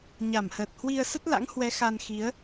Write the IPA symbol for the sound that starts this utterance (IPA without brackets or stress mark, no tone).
ɲ